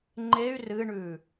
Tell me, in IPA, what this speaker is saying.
ŋ͡ǃey̯ rɨɳʉ

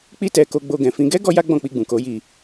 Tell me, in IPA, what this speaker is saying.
k͡pi˦tɛ˧ ko˧ɡ͡bo˧ɡɛ̃˨fĩ˧ ɡɛ˦ ɡɔ˦ja˦ ɡ͡bɔ̃˦˨k͡pi˧ ɡ͡bũ˨ko˨˦ji˧

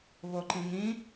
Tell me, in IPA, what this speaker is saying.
βoǃĩŋĩ

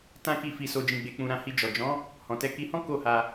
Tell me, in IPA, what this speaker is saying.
tã˦ki˦˨fi˧so˧ d͡ʒĩ˨ɡ͡be˨k͡pũ˨ ɾã˧hi˧d͡ʒɔ˨ d͡ʒɔ̃˨˦ | hɔ̃˨tɛ˨˦ ki˧hɔ̃˦ ko˦˨ha˧

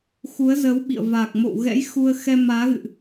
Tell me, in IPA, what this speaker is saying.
xu˨˦ə̯zə˨˦wɓḭ˧˨ə̯ vaː˨˩k̚mo̰˧˨w ɣɛ̰˧˥jxu˧ə̯xɛ˧ maː˨˦ɣɨ̰˧˨ʔ

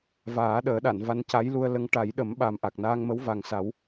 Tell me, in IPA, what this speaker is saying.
vaː˨˩˦ ɗəː˨˩˦ɗa˨˩˨n va˧nca˧˥jlu˧ə̯lə˧˥ŋ ʈa˨˩˦jɗə˨˩˦mɓa˨˩m ʔa˨˩k̚naː˧ŋmə˧˥w va˨˩ŋsa˨˩˦w

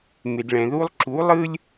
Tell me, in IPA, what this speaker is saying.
mɪ˩dɭɛ̃˩ðu˥lˠ ǁu˩˥ lˠɯ˥lʲ

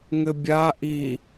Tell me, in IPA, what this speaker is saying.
ŋɘbʲa ʔi

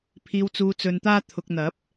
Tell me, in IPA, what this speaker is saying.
pʰiː˨wt͡suː˨t͡sɵ˨nt̪aː˧ t̪ʰʊ˨k̚n̪ɐ˨˥p̚

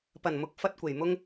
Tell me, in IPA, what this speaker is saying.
pɐ˨˩nmʊ˨˥k̚ fɐ˥t̚kʷe˨˩jmʊ˥ŋ

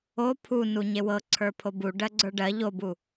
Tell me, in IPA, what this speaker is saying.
o pʰunuɲe wɤǀʰə˞pʰo buɖɜɡ͡ǀə˞ ɖɜ ʎobu

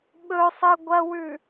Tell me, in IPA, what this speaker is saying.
ɓɵsˤɨ ɡʷɐwʉ

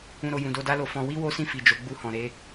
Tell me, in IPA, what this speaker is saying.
ũ˨ɾo˨ jũ˨do˧da˦lo˧ fɔ̃˧ wi˦wo˦sĩ˦˨ fi˨d͡ʒo˨˦ ɡ͡bu˧hɔ̃˨ ɾe˨˦

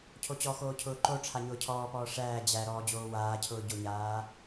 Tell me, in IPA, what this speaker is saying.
cʰot͡ɕɔxoː cʰʊːǃoʈ͡ʂʰa ɲʊːcʰɔːpɔː ʂæː d͡ʑæ ɾɔːd͡ʑoːwaːcʰʊː ɟʊɲaː

